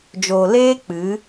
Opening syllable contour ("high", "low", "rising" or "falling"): low